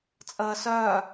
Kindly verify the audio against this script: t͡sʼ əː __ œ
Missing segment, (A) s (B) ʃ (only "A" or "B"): A